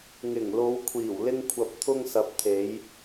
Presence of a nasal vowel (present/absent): absent